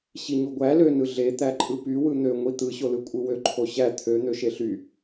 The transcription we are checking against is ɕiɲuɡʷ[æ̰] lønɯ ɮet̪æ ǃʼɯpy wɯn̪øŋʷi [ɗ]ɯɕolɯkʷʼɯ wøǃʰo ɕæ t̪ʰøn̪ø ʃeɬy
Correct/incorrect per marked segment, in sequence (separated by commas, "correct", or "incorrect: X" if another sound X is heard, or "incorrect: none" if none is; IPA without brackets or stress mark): incorrect: æ, incorrect: t̪